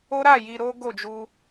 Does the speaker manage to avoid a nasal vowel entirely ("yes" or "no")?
yes